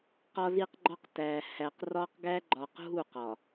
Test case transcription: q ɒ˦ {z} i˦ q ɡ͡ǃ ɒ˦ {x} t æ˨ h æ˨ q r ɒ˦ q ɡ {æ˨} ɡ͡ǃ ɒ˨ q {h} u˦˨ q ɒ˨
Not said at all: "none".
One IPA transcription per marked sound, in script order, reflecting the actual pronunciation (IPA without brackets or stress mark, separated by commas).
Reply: z, q, æ˦, ɦ